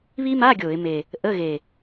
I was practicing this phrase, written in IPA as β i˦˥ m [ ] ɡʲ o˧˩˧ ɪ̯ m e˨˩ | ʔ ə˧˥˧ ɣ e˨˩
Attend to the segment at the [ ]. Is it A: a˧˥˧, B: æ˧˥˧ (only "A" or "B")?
A